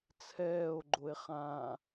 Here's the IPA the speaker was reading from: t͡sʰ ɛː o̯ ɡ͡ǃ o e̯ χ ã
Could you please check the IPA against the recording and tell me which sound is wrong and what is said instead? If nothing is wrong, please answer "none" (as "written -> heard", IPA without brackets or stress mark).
none